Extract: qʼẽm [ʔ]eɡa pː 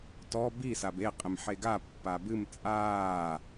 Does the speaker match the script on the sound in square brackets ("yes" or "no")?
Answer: no